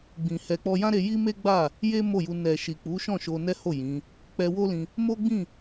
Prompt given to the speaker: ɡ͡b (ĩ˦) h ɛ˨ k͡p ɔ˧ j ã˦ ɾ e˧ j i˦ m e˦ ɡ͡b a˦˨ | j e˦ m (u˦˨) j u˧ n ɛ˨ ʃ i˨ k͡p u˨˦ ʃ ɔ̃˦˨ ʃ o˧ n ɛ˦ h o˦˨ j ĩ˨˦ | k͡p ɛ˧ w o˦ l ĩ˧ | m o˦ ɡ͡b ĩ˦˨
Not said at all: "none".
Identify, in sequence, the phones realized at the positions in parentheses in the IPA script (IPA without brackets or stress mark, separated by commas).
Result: ĩ˨, o˦˨